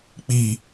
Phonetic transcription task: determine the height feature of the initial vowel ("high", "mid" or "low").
high